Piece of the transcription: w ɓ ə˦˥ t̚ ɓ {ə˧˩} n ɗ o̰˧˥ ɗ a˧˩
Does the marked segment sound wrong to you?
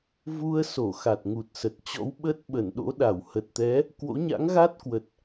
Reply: no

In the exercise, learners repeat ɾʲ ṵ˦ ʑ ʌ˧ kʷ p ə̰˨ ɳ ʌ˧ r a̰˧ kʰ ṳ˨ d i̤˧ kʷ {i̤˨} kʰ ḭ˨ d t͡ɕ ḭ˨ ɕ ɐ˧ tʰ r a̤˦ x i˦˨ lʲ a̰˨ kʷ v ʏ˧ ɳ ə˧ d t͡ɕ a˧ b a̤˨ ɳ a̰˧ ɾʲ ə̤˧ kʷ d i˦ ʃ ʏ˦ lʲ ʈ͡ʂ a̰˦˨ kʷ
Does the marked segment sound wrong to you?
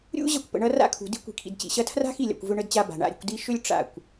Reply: no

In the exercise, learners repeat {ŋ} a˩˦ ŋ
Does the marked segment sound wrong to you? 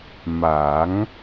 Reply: yes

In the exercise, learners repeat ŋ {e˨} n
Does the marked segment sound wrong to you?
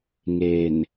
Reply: no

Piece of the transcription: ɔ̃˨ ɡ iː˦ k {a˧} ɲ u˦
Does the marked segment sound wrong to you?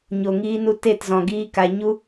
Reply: no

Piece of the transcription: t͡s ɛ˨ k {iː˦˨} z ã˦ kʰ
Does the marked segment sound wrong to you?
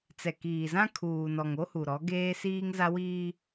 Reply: yes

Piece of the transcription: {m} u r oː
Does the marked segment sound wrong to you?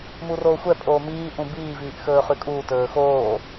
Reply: no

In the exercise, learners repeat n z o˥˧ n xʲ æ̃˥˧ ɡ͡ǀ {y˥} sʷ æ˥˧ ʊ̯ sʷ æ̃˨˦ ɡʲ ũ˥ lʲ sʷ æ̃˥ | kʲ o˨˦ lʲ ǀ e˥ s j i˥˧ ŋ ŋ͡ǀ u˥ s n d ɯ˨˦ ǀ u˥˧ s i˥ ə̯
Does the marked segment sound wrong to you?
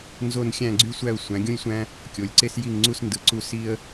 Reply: no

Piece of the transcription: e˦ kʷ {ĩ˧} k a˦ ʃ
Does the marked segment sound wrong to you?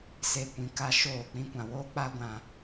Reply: no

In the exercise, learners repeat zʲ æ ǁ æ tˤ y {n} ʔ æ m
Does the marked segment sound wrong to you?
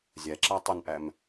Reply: no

